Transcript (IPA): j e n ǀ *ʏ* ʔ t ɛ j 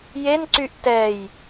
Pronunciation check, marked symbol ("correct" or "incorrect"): incorrect